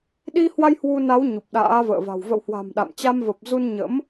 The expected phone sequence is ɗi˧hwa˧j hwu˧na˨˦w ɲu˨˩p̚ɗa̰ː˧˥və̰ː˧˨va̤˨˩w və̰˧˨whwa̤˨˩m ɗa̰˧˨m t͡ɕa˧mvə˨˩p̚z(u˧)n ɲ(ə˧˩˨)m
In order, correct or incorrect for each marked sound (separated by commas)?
correct, incorrect